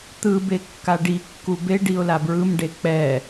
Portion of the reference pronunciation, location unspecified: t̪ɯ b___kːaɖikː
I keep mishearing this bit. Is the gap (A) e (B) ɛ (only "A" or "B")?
A